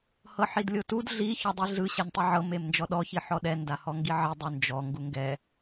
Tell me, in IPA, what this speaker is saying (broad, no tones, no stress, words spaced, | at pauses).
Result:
hɤħidlʲotud ɮi çɔdˤiɮɯ ɕɛnʲtˤiʕɤ memnd͡ʒɔɗɔ çiħɔɗɛ ndahɔŋɡiʕi dˤund͡ʒɔ ŋɡuŋɡɛ